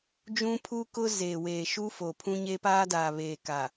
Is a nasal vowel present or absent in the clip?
present